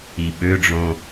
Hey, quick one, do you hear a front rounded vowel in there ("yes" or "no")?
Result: yes